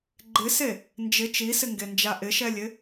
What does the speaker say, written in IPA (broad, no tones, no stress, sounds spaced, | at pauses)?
ɡ͡ǃ ɪ s e | n d͡ʒ ɪ t͡ʃ i s ɪ ŋ ɡ e n d͡ʒ a ʔ ɪ ʃ ɛ lʲ ɪ